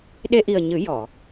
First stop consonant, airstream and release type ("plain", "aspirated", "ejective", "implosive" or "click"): implosive